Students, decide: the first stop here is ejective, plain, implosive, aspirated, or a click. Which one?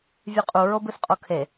ejective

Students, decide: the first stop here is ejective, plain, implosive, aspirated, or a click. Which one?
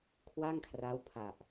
aspirated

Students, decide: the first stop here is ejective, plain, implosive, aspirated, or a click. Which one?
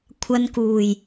aspirated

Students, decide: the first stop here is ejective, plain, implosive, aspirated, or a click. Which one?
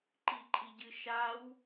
click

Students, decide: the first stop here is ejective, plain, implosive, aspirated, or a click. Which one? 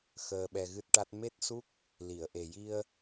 implosive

